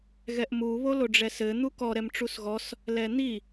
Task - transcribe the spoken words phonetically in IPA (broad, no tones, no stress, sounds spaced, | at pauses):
ɣ ɛ ʔ m u β o l o ɖ͡ʐ ɛ s ɘ n̪ u k ɔ ɾ ɛ m ʈ͡ʂ u s ɣ ɔ s | l ɛ n̪ i